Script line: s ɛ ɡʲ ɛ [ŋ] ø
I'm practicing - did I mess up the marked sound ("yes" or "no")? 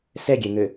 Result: no